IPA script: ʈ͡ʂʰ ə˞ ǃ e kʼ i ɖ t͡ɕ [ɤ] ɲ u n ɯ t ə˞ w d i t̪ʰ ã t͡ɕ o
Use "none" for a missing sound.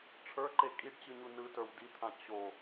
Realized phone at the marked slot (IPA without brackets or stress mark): ɯ